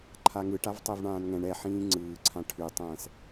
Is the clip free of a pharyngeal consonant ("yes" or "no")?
no